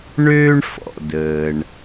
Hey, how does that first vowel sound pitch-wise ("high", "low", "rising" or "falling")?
high